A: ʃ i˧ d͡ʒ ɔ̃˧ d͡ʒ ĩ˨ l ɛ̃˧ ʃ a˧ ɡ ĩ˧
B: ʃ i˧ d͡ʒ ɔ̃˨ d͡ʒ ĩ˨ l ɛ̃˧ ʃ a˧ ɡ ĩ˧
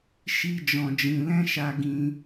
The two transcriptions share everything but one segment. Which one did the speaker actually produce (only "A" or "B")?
B